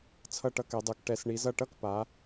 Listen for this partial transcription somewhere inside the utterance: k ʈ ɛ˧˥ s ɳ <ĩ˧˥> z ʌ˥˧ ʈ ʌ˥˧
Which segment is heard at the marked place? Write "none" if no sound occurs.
i˧˥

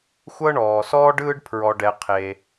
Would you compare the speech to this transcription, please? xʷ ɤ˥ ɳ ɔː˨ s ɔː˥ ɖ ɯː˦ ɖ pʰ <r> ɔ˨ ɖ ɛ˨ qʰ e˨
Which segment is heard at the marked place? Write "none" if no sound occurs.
ɹ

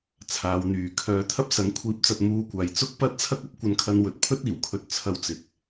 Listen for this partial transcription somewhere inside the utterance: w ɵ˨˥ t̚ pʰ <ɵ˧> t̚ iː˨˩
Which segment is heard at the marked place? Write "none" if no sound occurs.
ɵ˥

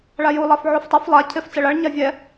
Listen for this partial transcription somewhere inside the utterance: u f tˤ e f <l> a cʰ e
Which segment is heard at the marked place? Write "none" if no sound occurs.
lˠ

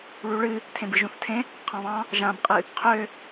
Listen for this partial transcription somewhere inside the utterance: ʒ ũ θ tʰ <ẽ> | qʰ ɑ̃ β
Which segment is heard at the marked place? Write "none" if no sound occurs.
ẽ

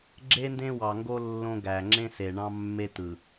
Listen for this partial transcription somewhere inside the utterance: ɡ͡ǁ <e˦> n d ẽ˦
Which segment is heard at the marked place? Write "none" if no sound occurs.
e˦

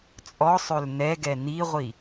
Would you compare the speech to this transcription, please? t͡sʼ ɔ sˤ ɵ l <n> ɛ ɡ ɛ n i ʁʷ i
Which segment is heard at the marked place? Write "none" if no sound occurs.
n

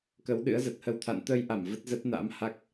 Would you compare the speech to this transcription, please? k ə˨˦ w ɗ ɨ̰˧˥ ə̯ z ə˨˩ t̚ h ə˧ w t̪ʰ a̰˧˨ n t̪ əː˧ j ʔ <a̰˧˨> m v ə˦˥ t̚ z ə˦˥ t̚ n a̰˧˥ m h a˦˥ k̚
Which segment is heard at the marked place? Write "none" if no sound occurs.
a˧˩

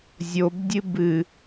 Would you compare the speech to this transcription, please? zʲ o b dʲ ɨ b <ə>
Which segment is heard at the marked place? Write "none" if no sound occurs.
ɨ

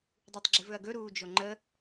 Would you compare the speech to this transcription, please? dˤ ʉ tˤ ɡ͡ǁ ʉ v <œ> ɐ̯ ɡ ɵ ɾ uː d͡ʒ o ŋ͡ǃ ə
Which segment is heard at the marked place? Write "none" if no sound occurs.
ɵ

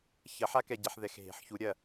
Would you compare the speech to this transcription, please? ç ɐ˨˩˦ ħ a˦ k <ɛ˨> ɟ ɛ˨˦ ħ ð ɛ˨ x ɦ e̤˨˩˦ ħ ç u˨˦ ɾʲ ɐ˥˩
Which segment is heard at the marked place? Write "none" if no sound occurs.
ɛ˨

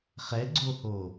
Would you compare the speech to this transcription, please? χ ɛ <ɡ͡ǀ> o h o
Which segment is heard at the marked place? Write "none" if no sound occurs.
ɡ͡ǀ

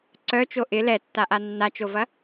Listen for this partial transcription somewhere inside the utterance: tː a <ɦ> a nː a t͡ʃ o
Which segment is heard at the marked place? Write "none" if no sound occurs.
ʔ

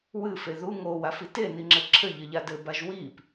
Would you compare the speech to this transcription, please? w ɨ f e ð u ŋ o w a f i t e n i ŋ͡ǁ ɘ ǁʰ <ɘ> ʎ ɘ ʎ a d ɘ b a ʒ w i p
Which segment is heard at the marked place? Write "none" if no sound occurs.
ɘ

